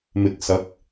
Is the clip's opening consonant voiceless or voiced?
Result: voiced